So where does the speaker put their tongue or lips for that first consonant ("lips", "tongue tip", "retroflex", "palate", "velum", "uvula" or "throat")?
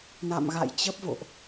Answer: tongue tip